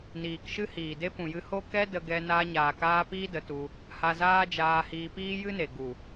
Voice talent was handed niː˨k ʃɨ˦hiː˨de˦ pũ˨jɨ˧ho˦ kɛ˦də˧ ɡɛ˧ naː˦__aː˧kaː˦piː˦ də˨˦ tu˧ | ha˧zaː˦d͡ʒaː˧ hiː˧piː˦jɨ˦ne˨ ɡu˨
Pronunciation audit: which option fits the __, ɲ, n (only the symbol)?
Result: ɲ